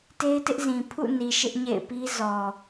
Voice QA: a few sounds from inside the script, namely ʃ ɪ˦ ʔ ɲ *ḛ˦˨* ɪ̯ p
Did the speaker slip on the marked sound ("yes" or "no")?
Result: no